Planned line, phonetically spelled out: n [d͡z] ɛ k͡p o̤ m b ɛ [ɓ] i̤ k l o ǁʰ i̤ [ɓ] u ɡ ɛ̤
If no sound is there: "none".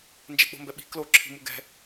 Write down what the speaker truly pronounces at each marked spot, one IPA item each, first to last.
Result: d͡ʒ, ɓ, m

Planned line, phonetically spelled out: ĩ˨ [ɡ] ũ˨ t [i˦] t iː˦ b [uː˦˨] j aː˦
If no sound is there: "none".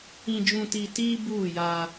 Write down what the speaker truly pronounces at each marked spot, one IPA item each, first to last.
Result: d͡ʒ, i˨, uː˦˨

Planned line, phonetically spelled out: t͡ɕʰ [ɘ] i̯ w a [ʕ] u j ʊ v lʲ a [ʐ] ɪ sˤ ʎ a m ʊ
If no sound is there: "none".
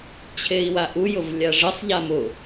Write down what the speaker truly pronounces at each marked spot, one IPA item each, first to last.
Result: e, ʔ, ʐ

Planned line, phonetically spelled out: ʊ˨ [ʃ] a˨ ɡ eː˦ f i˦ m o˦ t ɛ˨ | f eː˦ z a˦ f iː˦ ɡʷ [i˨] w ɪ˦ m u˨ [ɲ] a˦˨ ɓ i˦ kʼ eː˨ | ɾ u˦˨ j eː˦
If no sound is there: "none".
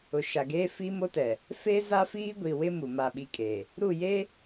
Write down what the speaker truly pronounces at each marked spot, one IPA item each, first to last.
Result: ʃ, i˨, m

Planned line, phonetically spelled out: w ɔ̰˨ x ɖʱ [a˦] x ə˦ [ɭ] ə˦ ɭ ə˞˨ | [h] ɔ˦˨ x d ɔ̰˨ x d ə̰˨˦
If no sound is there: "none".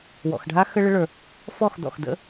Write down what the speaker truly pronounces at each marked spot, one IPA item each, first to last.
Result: a˦, ɭ, f

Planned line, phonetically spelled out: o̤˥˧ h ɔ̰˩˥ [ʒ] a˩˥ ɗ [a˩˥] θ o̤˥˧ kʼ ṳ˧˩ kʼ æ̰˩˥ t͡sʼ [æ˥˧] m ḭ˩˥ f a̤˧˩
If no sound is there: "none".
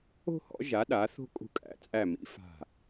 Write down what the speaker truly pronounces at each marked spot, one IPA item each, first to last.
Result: ʒ, a˩˥, æ˧˩

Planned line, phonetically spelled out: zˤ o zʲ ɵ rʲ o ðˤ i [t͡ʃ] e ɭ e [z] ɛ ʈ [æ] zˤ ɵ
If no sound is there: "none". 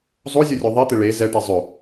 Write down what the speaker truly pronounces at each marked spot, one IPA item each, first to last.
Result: t̪, z, ɛ

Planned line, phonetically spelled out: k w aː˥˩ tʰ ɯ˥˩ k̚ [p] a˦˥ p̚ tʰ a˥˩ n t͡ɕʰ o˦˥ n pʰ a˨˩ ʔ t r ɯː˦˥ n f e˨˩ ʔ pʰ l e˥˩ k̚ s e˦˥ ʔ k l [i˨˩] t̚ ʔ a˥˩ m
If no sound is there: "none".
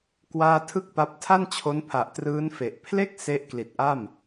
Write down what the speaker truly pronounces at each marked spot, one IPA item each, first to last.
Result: p, i˨˩

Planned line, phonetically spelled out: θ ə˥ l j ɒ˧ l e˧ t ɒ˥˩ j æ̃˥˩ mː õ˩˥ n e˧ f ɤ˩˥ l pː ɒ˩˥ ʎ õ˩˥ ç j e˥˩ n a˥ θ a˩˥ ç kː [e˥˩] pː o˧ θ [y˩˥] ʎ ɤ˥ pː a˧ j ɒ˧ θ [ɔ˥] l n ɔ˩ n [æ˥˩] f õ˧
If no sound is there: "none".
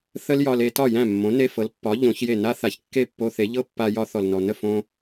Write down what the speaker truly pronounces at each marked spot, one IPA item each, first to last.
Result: e˥˩, e˩˥, ɔ˩, ə˥˩

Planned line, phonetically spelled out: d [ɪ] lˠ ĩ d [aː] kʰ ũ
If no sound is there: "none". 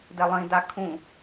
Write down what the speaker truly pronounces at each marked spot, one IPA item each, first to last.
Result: ɛ, a

